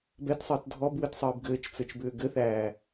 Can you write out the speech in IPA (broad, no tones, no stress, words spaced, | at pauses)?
bɛtsˤɘːt dʱɔbwɘtsˤɘːb ɡɘːt͡ʃt͡sɘt͡ʃbʏː ɡɘθæː